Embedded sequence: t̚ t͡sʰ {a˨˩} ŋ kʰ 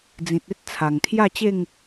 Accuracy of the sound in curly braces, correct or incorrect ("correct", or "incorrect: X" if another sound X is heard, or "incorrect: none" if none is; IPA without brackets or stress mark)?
correct